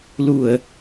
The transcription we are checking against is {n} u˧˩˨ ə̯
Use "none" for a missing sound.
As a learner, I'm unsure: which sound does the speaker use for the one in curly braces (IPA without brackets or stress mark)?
l